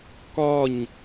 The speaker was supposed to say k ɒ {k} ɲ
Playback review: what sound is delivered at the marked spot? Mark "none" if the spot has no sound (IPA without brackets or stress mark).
none